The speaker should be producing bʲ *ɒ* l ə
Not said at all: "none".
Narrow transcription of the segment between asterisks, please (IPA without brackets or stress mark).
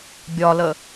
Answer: ɒ